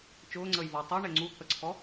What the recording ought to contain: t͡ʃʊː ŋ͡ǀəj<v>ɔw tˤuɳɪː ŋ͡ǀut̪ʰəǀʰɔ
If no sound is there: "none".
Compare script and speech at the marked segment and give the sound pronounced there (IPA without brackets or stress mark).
v